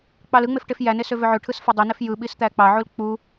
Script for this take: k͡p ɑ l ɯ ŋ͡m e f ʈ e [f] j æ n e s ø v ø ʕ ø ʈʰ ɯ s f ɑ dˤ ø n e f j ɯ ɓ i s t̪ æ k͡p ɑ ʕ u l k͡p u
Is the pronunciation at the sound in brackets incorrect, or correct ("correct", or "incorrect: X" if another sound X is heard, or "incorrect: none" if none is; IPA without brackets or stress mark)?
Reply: correct